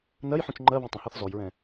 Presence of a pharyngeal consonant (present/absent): present